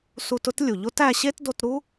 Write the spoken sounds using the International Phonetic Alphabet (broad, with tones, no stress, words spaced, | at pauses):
su˧t ʊ˥tlʲu˩ʎo˥t æ˧ɕe˥tdo˧tɾu˥